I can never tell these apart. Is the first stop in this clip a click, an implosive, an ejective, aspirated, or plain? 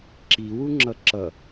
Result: click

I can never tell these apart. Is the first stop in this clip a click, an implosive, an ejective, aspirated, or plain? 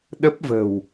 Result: implosive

